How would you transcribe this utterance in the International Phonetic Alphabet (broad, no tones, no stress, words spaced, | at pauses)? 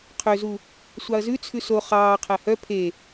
qʰøzu | sʷɑɐ̯zʉ t͡sʰʉso χɑːqʰæ hœ pʰe